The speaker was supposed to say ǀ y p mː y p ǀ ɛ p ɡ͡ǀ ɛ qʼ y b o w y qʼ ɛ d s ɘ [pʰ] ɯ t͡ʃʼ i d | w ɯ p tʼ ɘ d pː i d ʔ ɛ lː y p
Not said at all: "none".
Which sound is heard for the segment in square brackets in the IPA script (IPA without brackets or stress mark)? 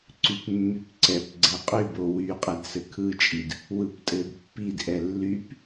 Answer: kʰ